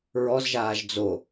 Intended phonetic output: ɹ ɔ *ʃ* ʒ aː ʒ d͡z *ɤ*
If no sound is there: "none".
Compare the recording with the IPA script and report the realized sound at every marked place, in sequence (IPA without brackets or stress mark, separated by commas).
z, o